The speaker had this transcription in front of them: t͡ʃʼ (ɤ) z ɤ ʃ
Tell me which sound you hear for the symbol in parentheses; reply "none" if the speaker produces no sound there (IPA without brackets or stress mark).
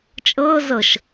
ɤ